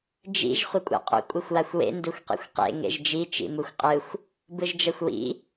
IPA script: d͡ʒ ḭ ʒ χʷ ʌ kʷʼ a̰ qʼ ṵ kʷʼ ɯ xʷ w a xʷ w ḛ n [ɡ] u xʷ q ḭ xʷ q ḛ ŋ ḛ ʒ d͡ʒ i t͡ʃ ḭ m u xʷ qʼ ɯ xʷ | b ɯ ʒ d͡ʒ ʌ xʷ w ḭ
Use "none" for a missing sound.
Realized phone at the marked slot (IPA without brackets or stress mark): d